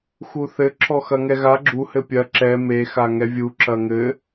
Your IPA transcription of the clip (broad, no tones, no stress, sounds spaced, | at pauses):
x u θ ɘ ǁʰ ɔ x ɐ ŋ ɛ ɣ a ɡ͡ǁ u h ɘ pʲ ɐ ǁ ɛ m e x a ŋ ɛ vʲ u ǁ ɐ ŋ ɘ